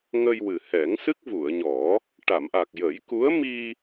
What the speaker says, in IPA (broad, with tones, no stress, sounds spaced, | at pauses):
ŋ ə˧ j w ɨ˨˩ h ɛ˨˩˦ ŋ s ɨ˦˥ k̚ v u˨˩˨ ə̯ ɲ ɔ˨˩˦ | ʈ a˨˩˨ m ʔ a˨˩ k̚ j ə˨˩˦ j k u˧˥ ə̯ m i˧